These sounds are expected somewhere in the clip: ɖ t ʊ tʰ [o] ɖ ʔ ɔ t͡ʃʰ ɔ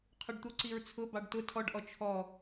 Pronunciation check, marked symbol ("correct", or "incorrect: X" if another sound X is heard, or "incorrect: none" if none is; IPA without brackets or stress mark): incorrect: ɔ